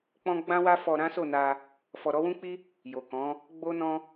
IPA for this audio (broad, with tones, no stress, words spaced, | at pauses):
k͡pɔ̃˦ ɡ͡bã˦wa˦fɔ˧ ɾã˦so˦˨na˧ | fɔ˨ɾɔ˨˦wũ˦k͡pi˦ | jo˨kɔ̃˨˦ | ɡ͡bo˦nɔ̃˦